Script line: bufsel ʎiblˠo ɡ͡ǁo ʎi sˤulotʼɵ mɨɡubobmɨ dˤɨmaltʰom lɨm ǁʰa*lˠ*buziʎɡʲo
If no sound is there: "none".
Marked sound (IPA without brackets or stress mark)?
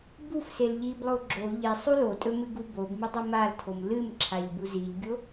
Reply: ʎ